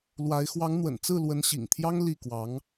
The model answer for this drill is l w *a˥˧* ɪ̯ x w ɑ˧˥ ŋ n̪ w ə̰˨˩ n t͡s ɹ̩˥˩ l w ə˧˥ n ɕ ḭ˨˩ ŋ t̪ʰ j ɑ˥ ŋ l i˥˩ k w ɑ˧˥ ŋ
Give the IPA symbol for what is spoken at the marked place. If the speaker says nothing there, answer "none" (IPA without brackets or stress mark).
a˧˥